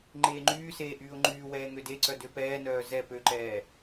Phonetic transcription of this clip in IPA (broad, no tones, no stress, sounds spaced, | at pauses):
ŋ͡ǃ eː ŋ͡ǃ yː s eː ʔ yː ʊ̯ ŋ͡ǃ yː w ɛː ŋ ø d e ǀ œ d ø p ɛː n œː z ɛ p ø ǃ ɛː